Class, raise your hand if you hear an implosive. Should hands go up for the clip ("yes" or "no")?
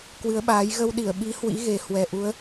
yes